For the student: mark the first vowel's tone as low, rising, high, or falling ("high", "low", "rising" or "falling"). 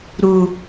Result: low